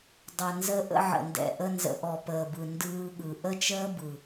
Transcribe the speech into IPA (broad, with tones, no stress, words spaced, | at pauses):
dˤə˩ nzə˧ ʔə̰˧ʕə̰˩ndɛ̰˩ ʔə˧ nzə̰˩ʔɔ˩ pəː˩bɯ˩ ndɯː˧ɠɯ˩ ʔə˥t͡ʃəː˥bɯ˩